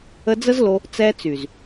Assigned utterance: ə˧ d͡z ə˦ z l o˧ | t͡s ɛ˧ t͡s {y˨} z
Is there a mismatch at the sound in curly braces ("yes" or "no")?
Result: no